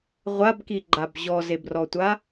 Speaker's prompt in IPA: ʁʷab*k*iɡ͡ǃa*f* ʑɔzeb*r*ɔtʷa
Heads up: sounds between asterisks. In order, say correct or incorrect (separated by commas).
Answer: correct, incorrect, correct